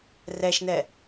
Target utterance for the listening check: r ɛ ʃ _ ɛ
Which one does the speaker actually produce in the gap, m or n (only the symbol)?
n